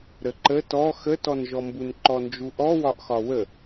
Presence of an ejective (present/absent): absent